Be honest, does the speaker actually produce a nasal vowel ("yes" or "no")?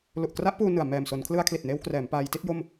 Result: no